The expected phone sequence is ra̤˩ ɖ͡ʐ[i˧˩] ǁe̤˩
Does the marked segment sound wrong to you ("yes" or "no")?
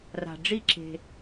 no